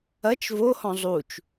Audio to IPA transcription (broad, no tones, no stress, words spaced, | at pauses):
ɐt͡ʃ vohɔ̃ zˤut͡ʃ